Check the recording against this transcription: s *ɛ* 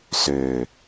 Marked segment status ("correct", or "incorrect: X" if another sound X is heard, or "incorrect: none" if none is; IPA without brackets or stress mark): incorrect: ø